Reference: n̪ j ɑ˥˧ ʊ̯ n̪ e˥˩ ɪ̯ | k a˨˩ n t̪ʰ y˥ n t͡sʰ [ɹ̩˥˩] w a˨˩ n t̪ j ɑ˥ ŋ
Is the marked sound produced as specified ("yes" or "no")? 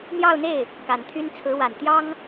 no